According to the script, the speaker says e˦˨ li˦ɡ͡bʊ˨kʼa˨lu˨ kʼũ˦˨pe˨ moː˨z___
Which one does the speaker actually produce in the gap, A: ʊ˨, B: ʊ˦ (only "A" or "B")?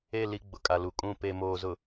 A